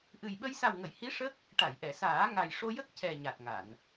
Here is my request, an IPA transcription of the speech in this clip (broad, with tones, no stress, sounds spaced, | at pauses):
ʔ ɨ˨˩ j ɓ ə˧ j s a˨˩ w ŋ ə˨˩˨ j h i˧˥ ʂ ə˦˥ k̚ | ʈ a˨˩˨ j ʔ ɛ˨˩˨ s aː˨˩˦ ŋ a˨˩ j ʂ o˧ j ə˦˥ k̚ c ɛ˨˩ ɲ a˨˩ t̚ ŋ a˨˩˨ n